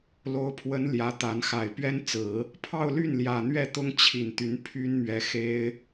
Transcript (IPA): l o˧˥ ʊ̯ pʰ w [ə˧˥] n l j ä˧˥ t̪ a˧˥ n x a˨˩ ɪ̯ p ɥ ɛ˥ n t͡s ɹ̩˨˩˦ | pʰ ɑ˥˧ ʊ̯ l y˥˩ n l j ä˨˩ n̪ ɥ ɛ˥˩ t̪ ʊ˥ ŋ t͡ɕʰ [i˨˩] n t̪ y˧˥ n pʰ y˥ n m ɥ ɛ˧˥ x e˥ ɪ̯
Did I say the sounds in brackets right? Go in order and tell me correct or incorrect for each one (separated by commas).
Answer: correct, correct